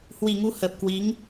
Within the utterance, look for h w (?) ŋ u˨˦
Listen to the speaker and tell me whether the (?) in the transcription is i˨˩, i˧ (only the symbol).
i˨˩